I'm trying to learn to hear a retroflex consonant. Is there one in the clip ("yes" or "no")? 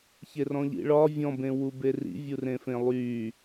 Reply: yes